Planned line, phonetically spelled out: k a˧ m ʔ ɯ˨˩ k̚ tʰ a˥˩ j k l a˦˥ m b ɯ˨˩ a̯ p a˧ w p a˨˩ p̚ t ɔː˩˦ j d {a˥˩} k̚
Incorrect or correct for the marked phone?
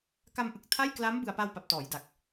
incorrect: a˨˩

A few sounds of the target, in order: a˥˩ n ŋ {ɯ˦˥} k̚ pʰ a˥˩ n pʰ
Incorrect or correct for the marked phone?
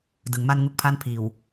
incorrect: u˦˥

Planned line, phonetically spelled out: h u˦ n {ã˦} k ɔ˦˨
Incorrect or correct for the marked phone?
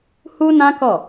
correct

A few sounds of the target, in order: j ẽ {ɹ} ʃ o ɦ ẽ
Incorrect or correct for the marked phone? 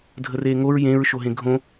correct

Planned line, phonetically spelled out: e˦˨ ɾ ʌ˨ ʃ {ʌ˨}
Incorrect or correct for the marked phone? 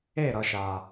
incorrect: a˨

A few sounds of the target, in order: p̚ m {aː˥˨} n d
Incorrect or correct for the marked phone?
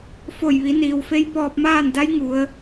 correct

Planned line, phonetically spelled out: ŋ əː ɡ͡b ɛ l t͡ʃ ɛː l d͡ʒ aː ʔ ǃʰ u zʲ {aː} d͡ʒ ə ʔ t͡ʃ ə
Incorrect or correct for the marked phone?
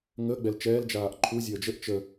incorrect: əː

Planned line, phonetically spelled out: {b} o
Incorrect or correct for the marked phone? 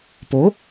incorrect: p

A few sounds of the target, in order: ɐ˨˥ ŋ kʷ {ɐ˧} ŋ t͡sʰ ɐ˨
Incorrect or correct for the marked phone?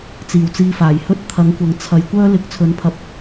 incorrect: ɐ˨˥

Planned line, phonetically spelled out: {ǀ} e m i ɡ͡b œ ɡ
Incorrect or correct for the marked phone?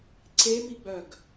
correct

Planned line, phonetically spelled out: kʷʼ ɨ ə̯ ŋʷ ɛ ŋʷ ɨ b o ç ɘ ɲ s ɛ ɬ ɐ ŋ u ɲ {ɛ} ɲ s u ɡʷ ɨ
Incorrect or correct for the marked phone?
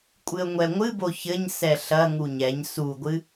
correct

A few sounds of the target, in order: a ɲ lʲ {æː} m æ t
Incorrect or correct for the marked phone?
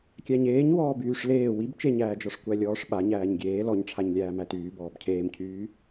correct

